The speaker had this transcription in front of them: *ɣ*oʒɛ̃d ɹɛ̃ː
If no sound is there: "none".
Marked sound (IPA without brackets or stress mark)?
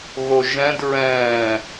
ɣ